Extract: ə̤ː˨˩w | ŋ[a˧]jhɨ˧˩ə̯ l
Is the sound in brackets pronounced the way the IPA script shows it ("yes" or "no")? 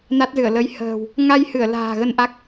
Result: yes